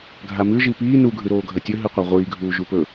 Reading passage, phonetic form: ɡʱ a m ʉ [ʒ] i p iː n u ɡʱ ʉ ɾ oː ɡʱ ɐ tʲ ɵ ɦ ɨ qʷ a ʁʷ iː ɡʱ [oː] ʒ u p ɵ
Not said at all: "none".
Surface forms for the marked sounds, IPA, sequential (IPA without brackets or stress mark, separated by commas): ʒ, uː